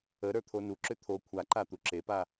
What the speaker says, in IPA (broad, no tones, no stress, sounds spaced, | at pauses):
ə ɾ ə˞ t̪ʰ o n u ǁ ʏ t̪ʰ o kʷʰ a ǃ a t̪ u ǁ e p a